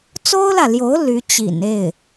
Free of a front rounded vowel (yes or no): no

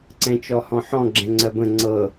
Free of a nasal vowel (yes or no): no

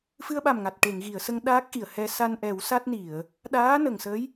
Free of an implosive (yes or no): no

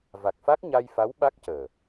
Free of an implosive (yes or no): no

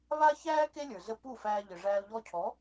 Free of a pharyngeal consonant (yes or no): yes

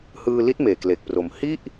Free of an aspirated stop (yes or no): yes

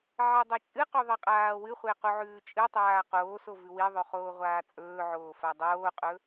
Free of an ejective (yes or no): no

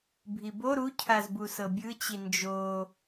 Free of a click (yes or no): yes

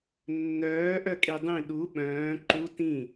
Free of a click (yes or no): no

